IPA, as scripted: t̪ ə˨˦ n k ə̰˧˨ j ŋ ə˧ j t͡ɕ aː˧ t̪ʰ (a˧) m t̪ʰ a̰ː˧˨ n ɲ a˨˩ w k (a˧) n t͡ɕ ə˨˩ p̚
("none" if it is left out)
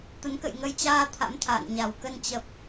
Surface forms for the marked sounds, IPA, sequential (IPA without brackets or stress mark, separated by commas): a̰˧˥, ə˧